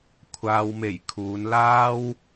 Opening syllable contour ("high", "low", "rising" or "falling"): low